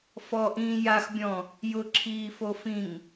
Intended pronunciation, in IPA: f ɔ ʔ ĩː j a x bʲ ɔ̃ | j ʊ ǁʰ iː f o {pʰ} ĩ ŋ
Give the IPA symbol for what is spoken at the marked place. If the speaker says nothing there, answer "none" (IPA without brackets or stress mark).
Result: f